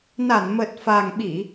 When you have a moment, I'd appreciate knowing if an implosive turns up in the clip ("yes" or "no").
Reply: yes